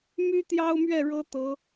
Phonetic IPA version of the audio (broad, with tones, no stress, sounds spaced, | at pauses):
m y˥ t̪ j ɑ˥ ʊ̯ m ɥ ɛ˥˩ ɻ ɤ˥ t̪ ɤ˧˥